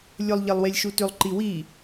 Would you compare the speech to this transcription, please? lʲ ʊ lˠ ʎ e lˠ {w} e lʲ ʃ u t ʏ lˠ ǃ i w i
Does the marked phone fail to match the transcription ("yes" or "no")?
no